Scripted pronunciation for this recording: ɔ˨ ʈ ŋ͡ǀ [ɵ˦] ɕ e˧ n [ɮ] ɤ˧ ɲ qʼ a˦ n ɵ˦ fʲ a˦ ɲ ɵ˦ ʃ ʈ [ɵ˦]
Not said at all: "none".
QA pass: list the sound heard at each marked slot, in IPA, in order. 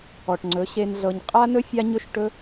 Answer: ɵ˨˦, ɮ, ɵ˦

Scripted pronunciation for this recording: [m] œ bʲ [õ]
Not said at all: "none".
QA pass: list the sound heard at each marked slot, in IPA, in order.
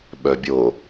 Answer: ɓ, o

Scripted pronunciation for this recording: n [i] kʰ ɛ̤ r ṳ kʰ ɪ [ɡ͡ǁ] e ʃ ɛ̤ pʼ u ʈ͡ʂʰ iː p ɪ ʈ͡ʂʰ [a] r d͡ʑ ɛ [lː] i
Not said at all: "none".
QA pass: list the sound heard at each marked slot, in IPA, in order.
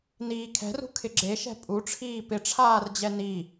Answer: iː, ɡ͡ǁ, aː, n

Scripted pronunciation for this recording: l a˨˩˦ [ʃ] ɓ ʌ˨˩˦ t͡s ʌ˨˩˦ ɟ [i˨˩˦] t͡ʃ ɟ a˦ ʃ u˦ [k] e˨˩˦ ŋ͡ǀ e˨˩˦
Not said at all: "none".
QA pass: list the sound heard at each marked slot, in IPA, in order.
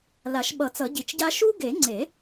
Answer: ʃ, i˨˩˦, ɡ

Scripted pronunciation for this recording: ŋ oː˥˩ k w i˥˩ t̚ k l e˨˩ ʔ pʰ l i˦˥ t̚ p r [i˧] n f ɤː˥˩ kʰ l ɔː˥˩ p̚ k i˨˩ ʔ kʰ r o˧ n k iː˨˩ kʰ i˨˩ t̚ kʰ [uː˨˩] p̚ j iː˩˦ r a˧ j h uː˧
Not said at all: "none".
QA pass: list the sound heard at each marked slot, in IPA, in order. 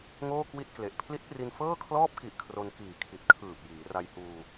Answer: i˧, ɯː˨˩

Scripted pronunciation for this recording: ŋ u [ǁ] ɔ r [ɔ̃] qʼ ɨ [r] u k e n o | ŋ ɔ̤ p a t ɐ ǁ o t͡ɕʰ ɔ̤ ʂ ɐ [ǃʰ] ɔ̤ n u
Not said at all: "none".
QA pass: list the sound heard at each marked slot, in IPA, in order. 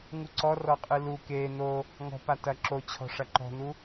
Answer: ǀ, ɔ, l, ǃ

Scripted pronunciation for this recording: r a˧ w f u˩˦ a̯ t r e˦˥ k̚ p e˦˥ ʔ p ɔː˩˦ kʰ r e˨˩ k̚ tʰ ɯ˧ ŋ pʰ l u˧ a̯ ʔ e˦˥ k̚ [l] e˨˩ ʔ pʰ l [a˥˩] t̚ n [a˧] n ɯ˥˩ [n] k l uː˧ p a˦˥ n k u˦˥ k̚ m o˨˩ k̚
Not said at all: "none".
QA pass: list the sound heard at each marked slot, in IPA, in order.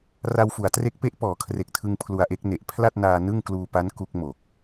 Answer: n, a˥˩, aː˧, ŋ

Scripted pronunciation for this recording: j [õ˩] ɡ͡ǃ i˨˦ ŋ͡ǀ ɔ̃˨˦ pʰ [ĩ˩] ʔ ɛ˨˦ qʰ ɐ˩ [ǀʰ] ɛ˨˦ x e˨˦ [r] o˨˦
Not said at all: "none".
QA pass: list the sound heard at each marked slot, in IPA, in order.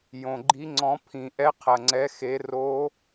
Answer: õ˩, ĩ˩, ŋ͡ǀ, r

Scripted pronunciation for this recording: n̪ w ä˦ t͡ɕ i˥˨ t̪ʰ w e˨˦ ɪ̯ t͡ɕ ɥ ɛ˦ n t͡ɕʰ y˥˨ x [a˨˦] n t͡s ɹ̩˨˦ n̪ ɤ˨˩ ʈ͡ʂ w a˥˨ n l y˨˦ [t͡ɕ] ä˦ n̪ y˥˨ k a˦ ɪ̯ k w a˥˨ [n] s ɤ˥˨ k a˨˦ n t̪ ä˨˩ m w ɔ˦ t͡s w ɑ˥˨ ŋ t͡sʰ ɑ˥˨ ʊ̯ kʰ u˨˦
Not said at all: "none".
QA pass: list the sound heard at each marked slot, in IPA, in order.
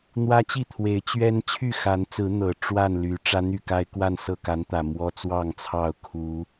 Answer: a˨˦, ʈ͡ʂ, n

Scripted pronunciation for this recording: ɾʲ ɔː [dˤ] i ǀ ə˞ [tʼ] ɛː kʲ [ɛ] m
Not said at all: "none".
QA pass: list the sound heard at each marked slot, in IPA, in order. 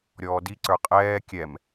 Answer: d, qʼ, ɛ

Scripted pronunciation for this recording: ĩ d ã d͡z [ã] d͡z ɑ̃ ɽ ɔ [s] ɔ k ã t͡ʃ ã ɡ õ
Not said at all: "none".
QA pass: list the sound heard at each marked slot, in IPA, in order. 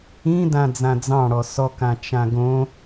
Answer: ã, s

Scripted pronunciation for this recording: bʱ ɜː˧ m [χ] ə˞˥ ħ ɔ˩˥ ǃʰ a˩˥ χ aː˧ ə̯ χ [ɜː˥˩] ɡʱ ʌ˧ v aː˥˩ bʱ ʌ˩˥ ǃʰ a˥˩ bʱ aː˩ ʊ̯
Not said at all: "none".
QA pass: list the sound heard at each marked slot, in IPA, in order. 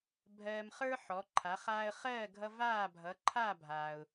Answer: χ, ɜː˥˩

